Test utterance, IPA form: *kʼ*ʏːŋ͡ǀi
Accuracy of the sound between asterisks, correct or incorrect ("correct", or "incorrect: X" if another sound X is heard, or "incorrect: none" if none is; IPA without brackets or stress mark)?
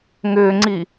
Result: incorrect: ŋ